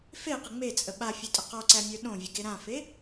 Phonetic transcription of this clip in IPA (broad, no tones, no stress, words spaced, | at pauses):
feqə ŋ͡met͡sʼə ɓafʲotʼə qɔǀæmʲə˞ ɗõvʲəɡe ɾãfe